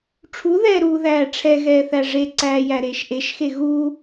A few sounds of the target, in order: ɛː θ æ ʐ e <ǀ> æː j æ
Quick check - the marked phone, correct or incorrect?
correct